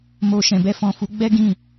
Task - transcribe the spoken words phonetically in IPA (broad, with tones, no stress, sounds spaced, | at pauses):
m o˨ ʃ ɛ̃˨ b ɛ˧ f ɔ̃˨ f u˨˦ ɡ͡b ɛ˦ ɡ ĩ˦˨